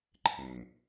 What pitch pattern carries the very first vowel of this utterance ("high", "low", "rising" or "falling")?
low